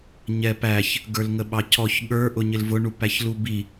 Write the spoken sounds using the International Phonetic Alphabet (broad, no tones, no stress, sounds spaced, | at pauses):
ɲ ɛ p æ ç | ɡ ə˞ l ŋ ə ɓ ɑ cʰ ɔ ç ɠ ə˞ ʔ ʊ ɲ ɪ l v ʊ ɳ u p æ ç l u b i